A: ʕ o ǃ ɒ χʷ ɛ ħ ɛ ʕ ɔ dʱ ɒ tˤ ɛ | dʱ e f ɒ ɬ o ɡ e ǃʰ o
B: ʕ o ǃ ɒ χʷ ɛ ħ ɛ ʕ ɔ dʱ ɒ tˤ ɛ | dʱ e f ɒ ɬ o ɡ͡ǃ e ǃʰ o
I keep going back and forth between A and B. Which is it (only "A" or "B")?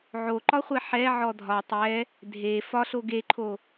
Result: A